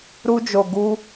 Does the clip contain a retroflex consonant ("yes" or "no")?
no